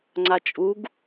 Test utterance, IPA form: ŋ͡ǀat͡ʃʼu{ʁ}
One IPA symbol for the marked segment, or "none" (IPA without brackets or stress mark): ɡ